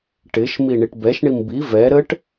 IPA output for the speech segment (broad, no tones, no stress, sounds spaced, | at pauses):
ʈ ɪ ʃ m i ɳ i ʈ b ɛ ʃ ɳ i m b i v ɛ ɾ ə ʈ